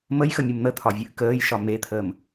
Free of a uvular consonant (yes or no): yes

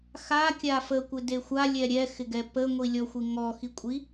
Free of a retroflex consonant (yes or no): yes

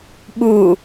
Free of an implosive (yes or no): no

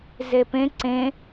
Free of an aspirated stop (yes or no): yes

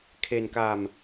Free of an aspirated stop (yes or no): no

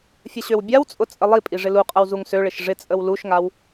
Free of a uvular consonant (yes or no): no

